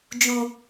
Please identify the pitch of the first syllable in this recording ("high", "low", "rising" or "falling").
low